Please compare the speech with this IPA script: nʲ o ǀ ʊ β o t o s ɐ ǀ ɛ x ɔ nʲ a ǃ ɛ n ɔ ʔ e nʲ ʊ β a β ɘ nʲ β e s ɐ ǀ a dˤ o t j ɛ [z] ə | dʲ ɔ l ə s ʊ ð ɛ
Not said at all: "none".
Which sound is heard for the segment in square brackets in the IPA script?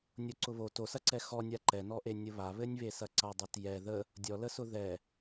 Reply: ð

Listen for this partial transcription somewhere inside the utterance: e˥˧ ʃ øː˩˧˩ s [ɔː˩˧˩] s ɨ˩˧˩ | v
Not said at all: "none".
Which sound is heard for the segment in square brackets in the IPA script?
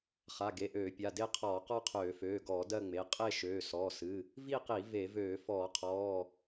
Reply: ɔː˩˧˩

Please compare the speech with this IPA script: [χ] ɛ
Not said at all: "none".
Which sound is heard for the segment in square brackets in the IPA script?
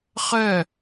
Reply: χ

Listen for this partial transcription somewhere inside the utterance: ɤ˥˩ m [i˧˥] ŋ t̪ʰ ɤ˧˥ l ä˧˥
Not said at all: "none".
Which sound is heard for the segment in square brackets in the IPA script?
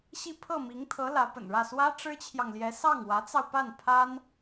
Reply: i˧˥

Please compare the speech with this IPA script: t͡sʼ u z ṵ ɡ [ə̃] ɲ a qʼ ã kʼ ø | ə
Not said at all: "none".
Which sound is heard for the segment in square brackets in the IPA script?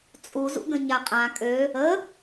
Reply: ə̃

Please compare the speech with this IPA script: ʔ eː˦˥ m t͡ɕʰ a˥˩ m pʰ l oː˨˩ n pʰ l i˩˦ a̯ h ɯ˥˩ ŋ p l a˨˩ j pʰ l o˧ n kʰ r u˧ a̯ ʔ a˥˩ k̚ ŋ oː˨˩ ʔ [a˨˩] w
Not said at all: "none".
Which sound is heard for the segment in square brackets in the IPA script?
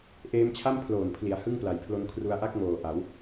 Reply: a˩˦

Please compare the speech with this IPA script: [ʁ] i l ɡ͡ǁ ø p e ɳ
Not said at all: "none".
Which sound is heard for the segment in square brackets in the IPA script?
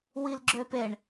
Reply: w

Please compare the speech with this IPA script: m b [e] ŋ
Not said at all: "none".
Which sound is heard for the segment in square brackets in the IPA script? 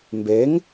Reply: e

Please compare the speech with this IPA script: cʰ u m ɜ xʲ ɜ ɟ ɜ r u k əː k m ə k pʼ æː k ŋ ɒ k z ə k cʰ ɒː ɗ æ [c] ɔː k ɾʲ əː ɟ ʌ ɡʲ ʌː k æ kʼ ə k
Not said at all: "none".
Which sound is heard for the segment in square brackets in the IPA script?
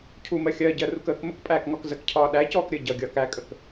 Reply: c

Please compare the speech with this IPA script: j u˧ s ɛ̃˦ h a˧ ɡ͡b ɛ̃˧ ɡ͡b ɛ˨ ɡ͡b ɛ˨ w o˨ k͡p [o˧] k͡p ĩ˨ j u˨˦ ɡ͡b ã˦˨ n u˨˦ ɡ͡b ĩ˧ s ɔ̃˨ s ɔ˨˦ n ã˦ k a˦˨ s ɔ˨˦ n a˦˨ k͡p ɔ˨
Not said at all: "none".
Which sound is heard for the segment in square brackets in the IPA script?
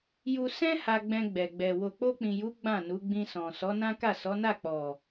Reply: o˧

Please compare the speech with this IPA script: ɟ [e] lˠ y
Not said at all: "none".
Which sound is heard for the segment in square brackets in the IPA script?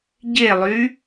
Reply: e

